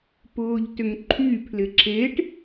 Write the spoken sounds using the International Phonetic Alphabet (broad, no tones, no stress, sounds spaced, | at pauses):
p ʊː ʎ t ʏ ŋ ǃʰ y pʰ l ɪ ǁʰ e ʈ